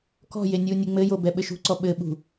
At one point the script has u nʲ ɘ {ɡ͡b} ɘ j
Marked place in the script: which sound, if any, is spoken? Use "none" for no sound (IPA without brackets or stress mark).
ŋ͡m